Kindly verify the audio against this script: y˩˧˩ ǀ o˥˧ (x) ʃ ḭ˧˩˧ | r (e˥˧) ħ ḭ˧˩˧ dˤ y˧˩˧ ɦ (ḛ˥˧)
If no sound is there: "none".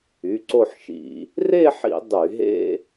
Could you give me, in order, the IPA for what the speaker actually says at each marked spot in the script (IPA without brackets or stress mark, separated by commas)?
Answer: ħ, e˥˧, ḛ˥˧